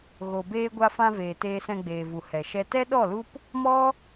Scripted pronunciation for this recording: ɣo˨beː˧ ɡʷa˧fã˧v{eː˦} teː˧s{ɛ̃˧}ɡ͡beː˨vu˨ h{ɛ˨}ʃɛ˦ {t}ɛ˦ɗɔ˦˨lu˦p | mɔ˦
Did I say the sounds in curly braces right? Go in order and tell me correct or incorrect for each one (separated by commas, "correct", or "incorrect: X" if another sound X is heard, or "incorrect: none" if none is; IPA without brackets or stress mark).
incorrect: eː˨, correct, correct, correct